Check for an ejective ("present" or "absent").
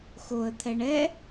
absent